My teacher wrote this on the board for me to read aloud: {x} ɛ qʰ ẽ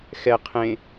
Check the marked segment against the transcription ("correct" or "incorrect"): correct